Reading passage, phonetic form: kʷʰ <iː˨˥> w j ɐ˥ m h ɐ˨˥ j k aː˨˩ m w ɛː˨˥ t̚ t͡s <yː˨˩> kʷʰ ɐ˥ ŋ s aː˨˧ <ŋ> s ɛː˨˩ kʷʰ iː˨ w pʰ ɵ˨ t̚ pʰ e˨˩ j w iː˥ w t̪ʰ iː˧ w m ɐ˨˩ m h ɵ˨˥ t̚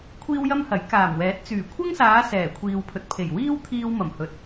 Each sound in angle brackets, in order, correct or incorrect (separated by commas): incorrect, correct, incorrect